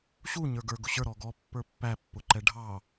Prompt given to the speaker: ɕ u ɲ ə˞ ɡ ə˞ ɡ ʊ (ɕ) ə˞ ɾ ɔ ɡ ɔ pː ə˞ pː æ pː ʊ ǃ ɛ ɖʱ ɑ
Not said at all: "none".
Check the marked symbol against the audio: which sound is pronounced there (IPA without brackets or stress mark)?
ɕ